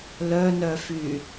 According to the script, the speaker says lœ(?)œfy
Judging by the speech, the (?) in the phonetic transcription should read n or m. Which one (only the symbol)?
n